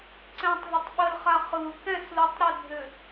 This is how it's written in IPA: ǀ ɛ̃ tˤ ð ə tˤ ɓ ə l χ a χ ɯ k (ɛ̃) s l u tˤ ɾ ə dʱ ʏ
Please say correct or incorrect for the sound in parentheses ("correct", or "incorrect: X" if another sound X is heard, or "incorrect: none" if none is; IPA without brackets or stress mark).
correct